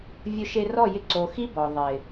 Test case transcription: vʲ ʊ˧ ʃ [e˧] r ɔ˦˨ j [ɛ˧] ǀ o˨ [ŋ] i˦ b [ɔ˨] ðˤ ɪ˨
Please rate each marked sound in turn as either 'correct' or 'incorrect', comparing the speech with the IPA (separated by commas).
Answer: correct, incorrect, incorrect, correct